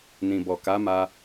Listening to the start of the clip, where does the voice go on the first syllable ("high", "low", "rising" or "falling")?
low